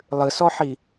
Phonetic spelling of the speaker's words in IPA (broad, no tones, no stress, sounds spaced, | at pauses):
lˠ ɨ s ɔ ħ i